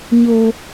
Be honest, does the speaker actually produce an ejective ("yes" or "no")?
no